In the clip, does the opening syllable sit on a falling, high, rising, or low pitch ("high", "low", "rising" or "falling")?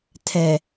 low